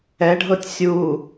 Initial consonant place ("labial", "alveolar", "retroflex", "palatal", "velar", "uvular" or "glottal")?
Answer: retroflex